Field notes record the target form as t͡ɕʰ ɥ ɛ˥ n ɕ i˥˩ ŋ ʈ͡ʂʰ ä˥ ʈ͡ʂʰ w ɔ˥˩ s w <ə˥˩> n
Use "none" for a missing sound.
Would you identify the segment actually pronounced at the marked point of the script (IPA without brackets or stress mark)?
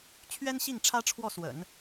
ə̰˨˩˦